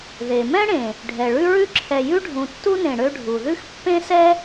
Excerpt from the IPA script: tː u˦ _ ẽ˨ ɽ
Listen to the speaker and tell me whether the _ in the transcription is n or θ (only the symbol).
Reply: n